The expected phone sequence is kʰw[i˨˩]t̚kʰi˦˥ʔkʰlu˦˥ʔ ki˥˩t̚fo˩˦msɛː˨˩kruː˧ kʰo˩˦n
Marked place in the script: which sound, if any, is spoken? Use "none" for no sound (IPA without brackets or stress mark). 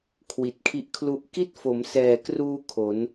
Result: i˨˩